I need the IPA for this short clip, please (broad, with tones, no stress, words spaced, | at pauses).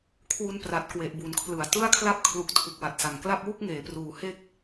kʰwu˦˥npra˨˩t̚ kwe˨˩ʔbu˩˦nkʰlɯ˩˦a̯ tɯ˥˩a̯kʰla˥˩p̚kʰlu˨˩k̚ tʰu˨˩k̚wa˨˩t̚sa˩˦ŋkla˥˩p̚ wu˥˩k̚ŋeː˩˦pruː˩˦ he˥˩k̚